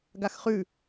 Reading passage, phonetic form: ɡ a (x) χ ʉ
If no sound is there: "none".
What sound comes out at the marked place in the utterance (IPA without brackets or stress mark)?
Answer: x